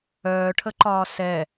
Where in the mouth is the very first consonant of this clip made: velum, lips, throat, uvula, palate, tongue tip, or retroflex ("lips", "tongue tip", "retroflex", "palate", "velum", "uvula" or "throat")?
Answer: retroflex